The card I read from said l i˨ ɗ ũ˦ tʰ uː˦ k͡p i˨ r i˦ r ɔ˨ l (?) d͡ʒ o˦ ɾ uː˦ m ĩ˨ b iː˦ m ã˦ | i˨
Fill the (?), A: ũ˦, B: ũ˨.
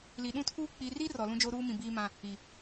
A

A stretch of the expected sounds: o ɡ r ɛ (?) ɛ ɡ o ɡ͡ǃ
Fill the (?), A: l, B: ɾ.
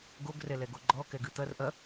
A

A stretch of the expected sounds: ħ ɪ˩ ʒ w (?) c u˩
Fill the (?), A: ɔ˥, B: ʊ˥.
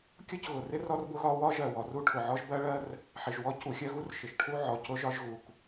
A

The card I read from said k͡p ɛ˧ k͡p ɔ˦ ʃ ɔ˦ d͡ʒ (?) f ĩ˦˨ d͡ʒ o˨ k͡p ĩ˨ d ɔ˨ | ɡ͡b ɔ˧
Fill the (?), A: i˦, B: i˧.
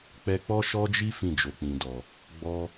A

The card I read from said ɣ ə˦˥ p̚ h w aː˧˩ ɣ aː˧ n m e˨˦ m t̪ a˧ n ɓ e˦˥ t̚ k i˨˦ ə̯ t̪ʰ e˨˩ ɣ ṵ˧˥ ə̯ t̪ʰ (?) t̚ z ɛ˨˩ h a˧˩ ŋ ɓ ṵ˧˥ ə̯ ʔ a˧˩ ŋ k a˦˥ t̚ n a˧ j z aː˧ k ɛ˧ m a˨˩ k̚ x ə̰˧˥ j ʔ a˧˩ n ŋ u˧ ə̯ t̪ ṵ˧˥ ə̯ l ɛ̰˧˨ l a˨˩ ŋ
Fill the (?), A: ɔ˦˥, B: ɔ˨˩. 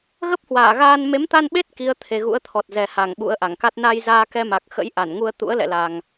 B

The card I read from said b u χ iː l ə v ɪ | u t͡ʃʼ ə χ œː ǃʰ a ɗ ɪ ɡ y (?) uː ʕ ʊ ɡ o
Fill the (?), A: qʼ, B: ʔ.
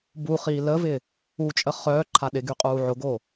A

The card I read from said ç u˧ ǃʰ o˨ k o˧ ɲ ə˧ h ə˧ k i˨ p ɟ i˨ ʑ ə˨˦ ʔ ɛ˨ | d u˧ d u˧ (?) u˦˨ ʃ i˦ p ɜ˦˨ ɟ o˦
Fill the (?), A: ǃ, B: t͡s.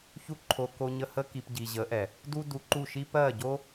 A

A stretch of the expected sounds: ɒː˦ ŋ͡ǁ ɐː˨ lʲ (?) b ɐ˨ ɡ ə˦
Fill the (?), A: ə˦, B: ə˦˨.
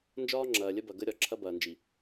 A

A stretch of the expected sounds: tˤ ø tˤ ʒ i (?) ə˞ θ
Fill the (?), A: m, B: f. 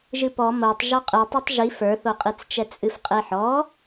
B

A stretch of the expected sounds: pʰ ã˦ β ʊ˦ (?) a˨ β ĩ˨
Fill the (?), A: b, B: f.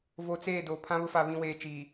B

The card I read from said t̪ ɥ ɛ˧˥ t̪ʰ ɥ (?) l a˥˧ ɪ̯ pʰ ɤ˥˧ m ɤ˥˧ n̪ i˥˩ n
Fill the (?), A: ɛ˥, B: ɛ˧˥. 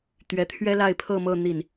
A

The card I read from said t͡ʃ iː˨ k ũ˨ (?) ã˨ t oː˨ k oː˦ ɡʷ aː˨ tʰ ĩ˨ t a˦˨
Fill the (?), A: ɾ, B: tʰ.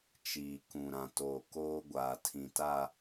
A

